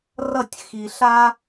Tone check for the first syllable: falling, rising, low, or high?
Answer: falling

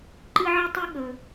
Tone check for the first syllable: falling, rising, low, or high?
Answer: high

